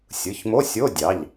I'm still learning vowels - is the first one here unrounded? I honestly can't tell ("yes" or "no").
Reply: yes